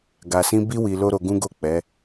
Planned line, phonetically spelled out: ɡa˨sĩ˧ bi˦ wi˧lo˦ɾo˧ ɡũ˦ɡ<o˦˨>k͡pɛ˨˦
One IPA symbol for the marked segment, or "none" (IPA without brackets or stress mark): o˦˨